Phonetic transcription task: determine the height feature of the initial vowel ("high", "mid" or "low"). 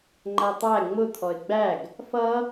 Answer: low